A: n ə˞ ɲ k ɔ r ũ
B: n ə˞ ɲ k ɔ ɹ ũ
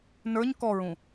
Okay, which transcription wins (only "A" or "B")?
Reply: B